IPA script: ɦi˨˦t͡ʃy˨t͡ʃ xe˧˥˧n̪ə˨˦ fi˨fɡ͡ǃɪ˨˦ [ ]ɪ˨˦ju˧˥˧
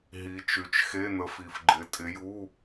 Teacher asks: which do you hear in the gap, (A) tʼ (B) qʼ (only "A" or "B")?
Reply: A